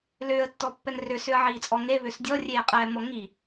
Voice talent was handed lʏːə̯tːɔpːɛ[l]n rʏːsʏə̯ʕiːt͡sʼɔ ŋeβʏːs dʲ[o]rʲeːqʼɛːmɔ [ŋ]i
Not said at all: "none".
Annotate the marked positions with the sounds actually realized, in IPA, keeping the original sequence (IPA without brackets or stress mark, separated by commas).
none, ɔ, ŋ